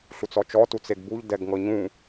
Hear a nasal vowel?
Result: yes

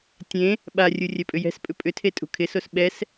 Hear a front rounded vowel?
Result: yes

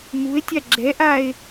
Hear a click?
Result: yes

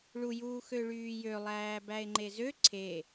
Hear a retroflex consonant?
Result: yes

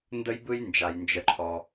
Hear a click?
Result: yes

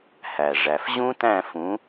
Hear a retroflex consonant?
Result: yes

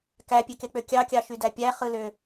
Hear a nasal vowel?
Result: no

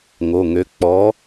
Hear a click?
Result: no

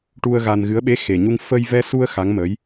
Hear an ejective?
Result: no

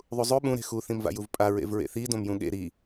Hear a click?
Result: no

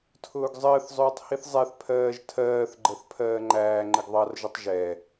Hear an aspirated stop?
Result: yes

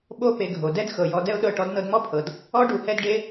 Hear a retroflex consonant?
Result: yes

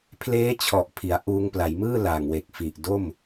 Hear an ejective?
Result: no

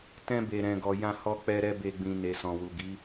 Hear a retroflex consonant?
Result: no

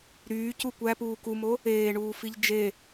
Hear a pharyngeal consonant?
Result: no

